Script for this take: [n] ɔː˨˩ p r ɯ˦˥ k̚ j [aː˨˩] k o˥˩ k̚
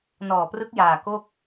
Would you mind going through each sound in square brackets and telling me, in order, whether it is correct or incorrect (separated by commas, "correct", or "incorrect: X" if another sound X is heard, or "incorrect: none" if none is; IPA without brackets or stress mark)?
correct, correct